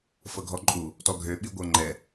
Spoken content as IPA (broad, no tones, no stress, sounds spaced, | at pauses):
f ɤ ɡʱ ɔ ǃʼ u | t ɔ ɡʱ ø ɓ i ɡʷ ɤ ŋ͡ǃ ɛ